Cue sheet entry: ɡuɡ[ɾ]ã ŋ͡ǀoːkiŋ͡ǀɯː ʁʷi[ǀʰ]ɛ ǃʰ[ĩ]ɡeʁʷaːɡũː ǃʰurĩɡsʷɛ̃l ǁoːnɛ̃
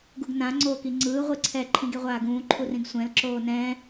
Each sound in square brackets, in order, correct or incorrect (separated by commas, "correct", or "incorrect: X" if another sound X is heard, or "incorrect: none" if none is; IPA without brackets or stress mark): incorrect: n, correct, correct